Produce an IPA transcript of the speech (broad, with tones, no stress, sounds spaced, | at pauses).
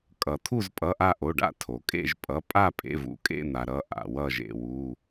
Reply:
kʼ ʌ˩ t̪ʰ u˦˨ z pʼ ʌ˩˧˩ ʔ a˦˨ ʔ o˩˧˩ ɖ a̰˦˨ tʰ o˩ kʼ ḛ˦˨ ʒ pʼ ʌ˩˧˩ pʼ a˦˨ pʼ ḛ˩˧˩ v ṵ˩ kʼ ḛ˦˨ n̪ a˩ ɾ ʌ˩˧˩ ʔ a̰˩ w ʌ˦˨ ʒ ḛ˩ w u˩˧˩